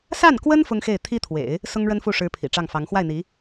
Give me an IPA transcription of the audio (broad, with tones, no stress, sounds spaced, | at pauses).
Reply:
s a˥˩ n k w ə˥ n f ʊ˥ ŋ x e˥˩ ɪ̯ t̪ʰ i˥ t̪ʰ w ḛ˨˩˦ ɪ̯ | s ʊ˥ ŋ ɻ ə˥ n f u˥˩ ʂ ɻ̩˧˥ pʰ ḭ˨˩ ʈ͡ʂ ɑ˥˩ ŋ f ɑ˧˥ ŋ x w a˥˩ ɪ̯ n̪ i˧˥